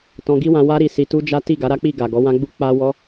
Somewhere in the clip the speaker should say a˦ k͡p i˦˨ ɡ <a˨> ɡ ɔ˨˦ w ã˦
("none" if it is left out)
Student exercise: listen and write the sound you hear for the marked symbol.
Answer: a˨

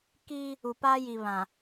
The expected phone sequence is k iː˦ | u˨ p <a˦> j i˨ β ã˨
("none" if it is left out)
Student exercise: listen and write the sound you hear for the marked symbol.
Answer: a˦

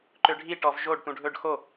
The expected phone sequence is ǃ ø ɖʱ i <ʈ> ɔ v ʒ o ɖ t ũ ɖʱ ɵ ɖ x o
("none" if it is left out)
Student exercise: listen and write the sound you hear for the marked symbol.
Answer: ʈ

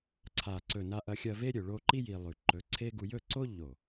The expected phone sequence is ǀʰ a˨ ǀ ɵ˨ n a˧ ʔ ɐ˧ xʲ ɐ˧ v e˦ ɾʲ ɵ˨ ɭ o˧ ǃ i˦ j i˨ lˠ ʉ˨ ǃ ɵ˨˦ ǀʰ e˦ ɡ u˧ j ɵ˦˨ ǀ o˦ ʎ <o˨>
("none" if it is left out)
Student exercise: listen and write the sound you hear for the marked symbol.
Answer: o˨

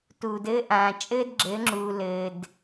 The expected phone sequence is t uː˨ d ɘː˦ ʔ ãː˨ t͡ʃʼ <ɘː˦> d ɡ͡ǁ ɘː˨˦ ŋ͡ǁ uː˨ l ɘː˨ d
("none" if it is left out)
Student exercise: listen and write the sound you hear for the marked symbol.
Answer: ɘː˦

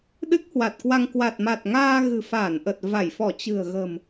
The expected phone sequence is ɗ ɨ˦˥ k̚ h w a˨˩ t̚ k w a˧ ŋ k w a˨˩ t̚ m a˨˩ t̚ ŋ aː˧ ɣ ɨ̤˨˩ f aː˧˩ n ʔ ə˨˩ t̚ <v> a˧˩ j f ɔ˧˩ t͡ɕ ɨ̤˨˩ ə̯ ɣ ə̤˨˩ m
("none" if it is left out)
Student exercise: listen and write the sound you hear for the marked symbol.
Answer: v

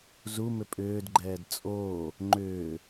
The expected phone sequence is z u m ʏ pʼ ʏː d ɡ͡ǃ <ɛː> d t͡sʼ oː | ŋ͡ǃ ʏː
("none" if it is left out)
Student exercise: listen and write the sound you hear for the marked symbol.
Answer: ɛː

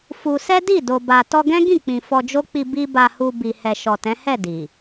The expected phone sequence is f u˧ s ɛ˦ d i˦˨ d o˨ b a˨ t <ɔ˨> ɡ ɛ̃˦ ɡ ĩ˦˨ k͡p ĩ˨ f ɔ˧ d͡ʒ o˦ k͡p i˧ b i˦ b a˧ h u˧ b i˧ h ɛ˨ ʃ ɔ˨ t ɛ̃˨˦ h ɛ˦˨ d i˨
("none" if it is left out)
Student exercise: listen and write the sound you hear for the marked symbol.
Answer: ɔ˧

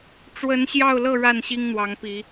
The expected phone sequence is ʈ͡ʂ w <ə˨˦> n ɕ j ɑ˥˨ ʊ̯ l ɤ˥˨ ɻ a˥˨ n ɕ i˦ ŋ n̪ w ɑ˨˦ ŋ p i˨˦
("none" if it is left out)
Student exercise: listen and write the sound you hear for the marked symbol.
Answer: ə˨˦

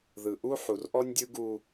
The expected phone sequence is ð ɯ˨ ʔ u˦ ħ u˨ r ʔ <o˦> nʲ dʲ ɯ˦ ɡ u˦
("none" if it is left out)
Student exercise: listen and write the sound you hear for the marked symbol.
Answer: ɔ˦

